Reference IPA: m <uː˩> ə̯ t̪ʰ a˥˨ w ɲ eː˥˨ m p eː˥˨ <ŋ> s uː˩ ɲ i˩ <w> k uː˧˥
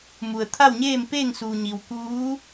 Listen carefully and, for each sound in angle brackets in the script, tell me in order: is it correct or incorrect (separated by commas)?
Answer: incorrect, correct, correct